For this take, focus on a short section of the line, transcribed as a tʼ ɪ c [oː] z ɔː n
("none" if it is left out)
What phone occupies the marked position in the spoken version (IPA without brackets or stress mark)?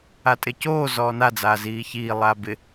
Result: oː